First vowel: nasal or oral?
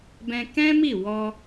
nasal